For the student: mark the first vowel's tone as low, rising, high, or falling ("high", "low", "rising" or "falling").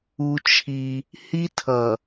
high